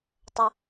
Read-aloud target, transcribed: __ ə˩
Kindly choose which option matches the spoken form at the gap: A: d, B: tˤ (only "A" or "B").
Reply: B